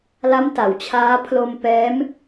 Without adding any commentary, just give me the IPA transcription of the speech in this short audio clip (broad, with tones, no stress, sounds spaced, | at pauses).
l a˦˥ m t a˩˦ w t͡ɕʰ aː˦˥ pʰ l o˧ m p ɛː˦˥ m